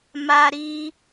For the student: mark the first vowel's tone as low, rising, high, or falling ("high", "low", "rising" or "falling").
high